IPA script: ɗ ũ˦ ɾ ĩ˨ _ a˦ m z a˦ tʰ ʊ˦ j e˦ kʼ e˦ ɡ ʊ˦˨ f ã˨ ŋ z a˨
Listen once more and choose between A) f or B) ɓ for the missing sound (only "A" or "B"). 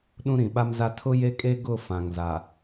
B